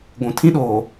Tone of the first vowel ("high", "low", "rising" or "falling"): low